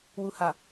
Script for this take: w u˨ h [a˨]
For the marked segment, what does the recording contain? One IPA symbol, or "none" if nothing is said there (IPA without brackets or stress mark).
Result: a˨